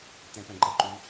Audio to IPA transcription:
t̪ ɛ̃ p ɛ̃ ɡ͡ǃ ʌ ǃ u

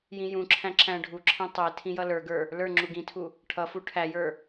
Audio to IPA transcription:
j ĩ j ũ ǁʰ æ̃ ǁ æ̃ ɖʱ u ǁʰ ɛ̃ tˤ ɛ tʰ ĩ j ʌ l ə˞ ɡ ə˞ | l ə˞ ŋ͡ǁ u ɡ ĩ tʰ u | ʈʰ ʌ f u ʈʰ æ j ə˞

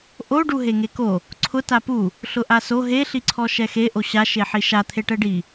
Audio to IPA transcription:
ʔ o ɖ u ɦ e ŋ e k o | ǀʰ ʊ t a p u | ɬ ʊ ʔ a s o ɦ e ɬ i ǀʰ ɔ ʃ ɛ x e ʔ o ɕ a ʃ e ħ i ʃ a t̪ʰ e ʈ ɛ ɖ i

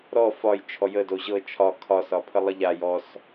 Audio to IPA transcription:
ɾ ɔ f ɒ j t͡ʃʰ ɔ j ə d o ʑ ɤ t͡ʃʰ ɒ kʰ ɒ s ɒ pʰ ə lˠ ə ʎ a j ɔ s

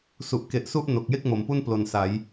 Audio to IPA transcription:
s u˨˩ ʔ k e˨˩ ʔ s u˦˥ ʔ n o˨˩ k̚ j e˥˩ k̚ m o˩˦ m p u˥˩ n p l o˨˩ n s a˩˦ j

